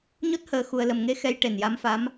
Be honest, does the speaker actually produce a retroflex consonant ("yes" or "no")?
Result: yes